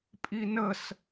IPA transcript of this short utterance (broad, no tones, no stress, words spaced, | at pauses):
pʼinəs